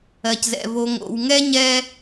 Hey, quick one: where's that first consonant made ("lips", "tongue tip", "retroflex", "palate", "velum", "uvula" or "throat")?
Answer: palate